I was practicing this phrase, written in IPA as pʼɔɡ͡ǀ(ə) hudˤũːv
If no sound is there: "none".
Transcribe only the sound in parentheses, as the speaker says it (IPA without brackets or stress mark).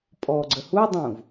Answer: ə